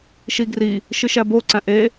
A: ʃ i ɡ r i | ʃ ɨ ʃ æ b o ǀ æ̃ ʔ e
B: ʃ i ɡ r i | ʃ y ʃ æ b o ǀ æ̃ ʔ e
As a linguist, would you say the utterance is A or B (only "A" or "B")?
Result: A